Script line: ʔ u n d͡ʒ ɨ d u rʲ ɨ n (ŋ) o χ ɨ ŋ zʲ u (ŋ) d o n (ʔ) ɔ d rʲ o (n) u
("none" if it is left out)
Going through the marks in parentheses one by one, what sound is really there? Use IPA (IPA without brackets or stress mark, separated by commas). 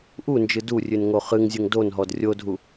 ŋ, ŋ, ɦ, dʱ